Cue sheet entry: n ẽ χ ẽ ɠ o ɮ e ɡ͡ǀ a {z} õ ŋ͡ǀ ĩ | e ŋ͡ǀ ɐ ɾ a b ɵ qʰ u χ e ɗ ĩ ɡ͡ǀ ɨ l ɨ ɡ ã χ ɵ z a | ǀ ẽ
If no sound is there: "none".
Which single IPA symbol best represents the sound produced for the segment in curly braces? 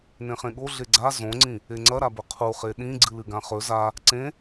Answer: z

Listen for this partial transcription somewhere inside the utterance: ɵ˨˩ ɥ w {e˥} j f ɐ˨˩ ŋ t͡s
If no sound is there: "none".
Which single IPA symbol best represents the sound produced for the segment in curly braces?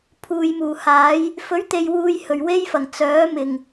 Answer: e˥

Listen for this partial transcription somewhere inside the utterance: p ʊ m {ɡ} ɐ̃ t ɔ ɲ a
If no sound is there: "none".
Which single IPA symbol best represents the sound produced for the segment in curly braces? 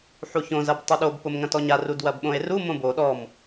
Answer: ŋ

